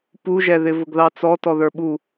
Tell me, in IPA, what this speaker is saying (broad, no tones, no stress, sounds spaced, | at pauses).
p u ʒ ɛ ð ɪ v ʊ ɡ ð ɑ t͡s ɔ t ɔ ð ə˞ ɓ u